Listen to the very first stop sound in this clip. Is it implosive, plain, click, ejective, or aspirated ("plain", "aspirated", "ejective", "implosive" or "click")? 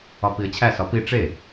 plain